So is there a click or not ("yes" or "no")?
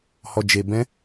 no